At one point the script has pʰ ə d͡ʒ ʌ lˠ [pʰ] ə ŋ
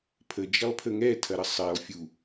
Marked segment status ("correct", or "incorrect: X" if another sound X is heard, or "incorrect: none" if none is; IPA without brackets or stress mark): correct